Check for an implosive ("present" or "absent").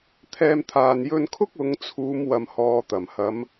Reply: absent